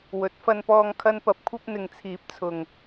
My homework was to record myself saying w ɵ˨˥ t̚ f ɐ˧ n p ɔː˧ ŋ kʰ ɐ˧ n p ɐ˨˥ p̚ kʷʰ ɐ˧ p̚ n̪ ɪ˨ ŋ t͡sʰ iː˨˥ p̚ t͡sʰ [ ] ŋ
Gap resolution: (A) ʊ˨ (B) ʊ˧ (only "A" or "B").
A